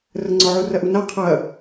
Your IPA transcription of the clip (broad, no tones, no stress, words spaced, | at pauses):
rəŋ͡ǀɔ ʕurɐʔuna qʰɐ